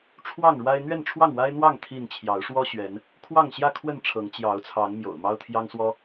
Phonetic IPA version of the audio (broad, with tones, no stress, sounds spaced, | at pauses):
ʈ͡ʂʰ w ɑ˥˨ ŋ ɻ w a˦ ɪ̯ n̪ ɥ ɛ˥˨ n ʈ͡ʂʰ w ɑ˥˨ ŋ w a˦ ɪ̯ n̪ w ɑ˥˨ ŋ t̪ʰ i˥˨ n t͡ɕʰ j ɑ˨˦ ʊ̯ ʂ w ɔ˦ ɕ ɥ ɛ˨˦ n | kʰ w ɑ˥˨ ŋ ɕ j ä˥˨ kʰ w ə˥˨ n ʈ͡ʂʰ ɤ˨˦ ŋ t͡ɕ j ɑ˨˦ ʊ̯ t͡sʰ ɑ˨˦ ŋ m j o̰˨˩ ʊ̯ m ɑ˦ ʊ̯ t̪ʰ j ɑ˦ ŋ s w ɔ˦